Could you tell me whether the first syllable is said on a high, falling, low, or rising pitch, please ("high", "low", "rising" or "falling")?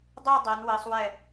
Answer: falling